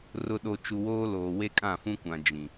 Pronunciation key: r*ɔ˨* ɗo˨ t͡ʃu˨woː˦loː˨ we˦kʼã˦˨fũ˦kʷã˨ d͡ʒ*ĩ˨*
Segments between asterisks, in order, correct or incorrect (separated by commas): incorrect, correct